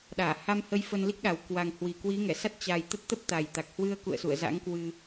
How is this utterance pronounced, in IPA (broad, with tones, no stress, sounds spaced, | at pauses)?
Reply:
ɗ aː˧˩ h a˧ m h ə˧ j f ə˧ n l i˦˥ k̚ ɗ a˨˩ w k w a˨˩ ŋ h w i˨˩ k w i˨˦ ŋ ɛ˧˩ s a˦˥ t̚ t͡ɕ a˨˩ j t̪ ə˦˥ t̚ t̪ ə˦˥ p̚ t̪ a˨˩ j t̪ a˨˩ k̚ h w ɨ˧ ə̯ k ṵ˧˨ ə̯ s ṵ˧˨ ə̯ z a̰˧˥ ŋ k w ɨ˧